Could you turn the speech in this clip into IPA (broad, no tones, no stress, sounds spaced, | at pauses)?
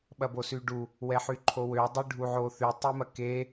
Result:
ɓ ɐ b o s y ɖ u | w ɛ ħ y ǃʰ o w ø dˤ y ɖʱ u ʕ o θ y tˤ i m ɐ k e